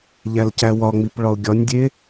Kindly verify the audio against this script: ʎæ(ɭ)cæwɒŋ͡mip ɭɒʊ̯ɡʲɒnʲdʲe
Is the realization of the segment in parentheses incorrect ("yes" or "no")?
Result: yes